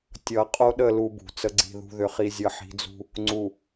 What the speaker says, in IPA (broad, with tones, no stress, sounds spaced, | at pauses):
tʲ ʌ˨ qʼ o˦ ɗ ə˦˨ l u˦ b ṳ˨ t͡s ə˦ ɡ͡ǀ i̤˦˨ ð ṳ˨ ð ʏ˨ χ i˨ zʲ ʌ˨ ħ i̤˨˦ d͡z ṳ˦ | ŋ͡ǀ u˨